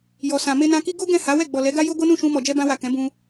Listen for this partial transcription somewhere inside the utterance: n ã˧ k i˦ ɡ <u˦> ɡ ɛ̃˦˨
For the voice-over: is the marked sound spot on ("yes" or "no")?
no